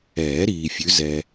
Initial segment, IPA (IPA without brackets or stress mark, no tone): ɛː